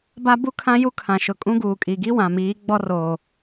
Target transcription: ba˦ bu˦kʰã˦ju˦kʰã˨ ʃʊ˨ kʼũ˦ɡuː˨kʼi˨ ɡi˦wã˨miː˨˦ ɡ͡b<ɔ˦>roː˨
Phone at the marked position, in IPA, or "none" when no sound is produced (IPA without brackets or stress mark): ɔ˦